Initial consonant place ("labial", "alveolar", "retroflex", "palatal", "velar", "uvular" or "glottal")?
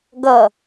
velar